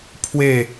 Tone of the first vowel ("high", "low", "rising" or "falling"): falling